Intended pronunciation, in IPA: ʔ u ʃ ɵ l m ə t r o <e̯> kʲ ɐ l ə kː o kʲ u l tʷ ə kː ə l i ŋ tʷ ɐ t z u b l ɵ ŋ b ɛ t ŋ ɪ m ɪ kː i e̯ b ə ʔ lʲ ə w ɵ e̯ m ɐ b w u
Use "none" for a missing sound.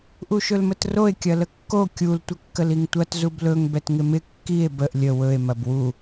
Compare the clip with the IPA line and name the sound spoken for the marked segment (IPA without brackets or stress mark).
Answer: e̯